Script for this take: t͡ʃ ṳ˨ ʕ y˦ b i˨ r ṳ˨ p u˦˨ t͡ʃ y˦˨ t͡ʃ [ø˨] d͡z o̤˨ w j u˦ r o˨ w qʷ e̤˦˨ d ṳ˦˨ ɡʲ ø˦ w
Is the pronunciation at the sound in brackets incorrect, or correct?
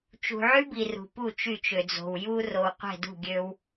correct